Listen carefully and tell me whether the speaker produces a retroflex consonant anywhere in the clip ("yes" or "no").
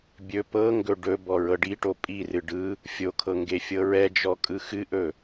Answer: yes